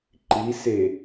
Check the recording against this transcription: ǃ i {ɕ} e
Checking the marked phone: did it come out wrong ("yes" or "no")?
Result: yes